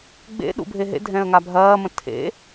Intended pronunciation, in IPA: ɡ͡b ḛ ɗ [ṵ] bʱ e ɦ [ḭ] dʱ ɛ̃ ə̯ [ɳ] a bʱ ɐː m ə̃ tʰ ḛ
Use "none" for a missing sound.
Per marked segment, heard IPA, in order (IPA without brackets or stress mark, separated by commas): ṵ, ḛ, ŋ